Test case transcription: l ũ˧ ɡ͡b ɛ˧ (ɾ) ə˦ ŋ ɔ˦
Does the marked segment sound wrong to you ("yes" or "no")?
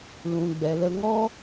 yes